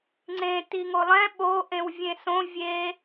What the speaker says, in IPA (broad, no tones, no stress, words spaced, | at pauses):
ŋ͡ǀẽ tiŋolˠɛ̃ ɓo ʔẽwvʲẽsõ vʲe